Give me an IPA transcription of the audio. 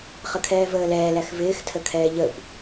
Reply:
χ ə kʰ ɛː v əː l ɛː l æ x v ɪː x tʰ ə kʰ ɛː ʎ ə b

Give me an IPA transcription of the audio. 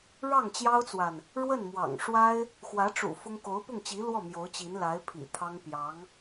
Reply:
ɻ ɑ˥˩ ŋ t͡ɕ j ɑ˥ ʊ̯ t͡s w a˨ n | ɻ w ə˥˩ n m w ɑ̰˨˩ ŋ ʂ w a˥ ɪ̯ | x w ä˧˥ ʈ͡ʂ ṵ˨˩ f ʊ˥ ŋ k o˧˥ ʊ̯ p ʊ˥˩ ŋ t͡ɕ i˧˥ l w ɔ˥˩ m j o˧˥ ʊ̯ t͡ɕ i˧˥ n l a˧˥ ɪ̯ pʰ ḭ˨˩ t̪ʰ ɑ˥ ŋ p j ɑ˧˥ ŋ

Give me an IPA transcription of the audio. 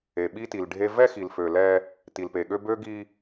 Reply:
e˨ ɓ i˦ t i˨ l ɖʱ e˦ v ɛ˦ x i˨ l f ø˨ l ɛ˦ | t i˨ l p e˨ ɠ ø˦ b ø˦ ɡ i˦

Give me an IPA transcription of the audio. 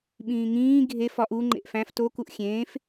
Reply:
ɓ ĩː ŋ ĩː ɡʱ e f ɒ ʔ u ŋ͡ǃ ḛ ʔ f æ̃ f t o k u ʔ xʲ ẽː f

